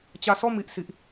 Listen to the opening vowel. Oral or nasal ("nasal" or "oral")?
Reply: oral